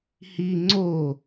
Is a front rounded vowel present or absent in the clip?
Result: absent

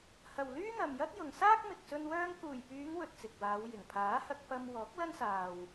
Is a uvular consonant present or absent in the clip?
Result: absent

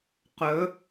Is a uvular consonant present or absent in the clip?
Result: present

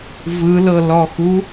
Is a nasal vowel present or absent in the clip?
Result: absent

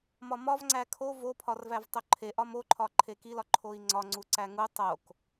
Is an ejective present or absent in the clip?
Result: absent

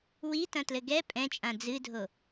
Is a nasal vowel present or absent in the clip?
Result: present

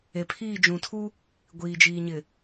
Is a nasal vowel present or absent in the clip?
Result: present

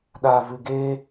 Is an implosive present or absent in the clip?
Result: present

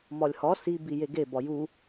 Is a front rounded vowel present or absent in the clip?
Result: absent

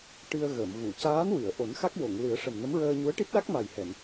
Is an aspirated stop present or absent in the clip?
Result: absent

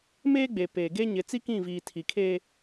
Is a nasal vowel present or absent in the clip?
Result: present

